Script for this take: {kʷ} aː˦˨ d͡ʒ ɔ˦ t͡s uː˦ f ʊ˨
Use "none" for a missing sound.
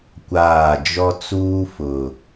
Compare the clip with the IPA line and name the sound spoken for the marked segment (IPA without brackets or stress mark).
kʷ